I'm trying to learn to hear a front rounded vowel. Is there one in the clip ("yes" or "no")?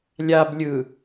no